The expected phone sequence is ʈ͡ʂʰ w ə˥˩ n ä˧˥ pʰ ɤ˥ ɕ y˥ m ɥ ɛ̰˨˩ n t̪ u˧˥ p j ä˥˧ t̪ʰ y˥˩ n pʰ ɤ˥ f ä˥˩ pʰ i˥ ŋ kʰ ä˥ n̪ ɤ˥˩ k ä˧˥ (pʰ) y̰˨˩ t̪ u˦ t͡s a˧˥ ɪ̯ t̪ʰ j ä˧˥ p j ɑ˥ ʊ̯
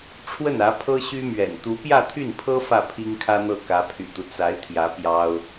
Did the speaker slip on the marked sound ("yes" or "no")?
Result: no